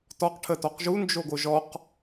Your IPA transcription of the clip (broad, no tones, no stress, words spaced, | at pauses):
tɔq ʈʰətɔqʒu nd͡ʒoɡoʒɔq